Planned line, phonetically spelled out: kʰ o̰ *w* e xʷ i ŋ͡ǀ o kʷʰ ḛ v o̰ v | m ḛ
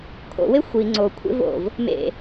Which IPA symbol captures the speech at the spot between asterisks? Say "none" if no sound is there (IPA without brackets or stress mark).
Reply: w